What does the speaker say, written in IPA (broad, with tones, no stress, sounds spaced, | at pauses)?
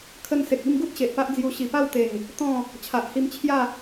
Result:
kʰ ə˧ n s e˨ k̚ i˥˧ m ɡ u˦ t̚ ɕ e˨ ʔ p a˦ ʔ d͡z j u˧ ɕ i˨˩ p a˥˧ w t̪ e˨˩ ŋ | t̪ ɔ̃˥˧ | t͡ɕʰ a˨ ʔ h i˧ m t͡ɕʰ j a˥˧